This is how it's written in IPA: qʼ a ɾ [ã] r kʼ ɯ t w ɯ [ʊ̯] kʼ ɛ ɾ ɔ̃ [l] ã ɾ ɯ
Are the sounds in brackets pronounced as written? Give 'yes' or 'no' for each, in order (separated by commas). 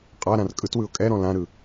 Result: yes, yes, yes